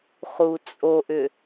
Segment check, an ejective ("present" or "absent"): present